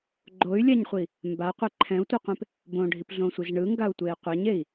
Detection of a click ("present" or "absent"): present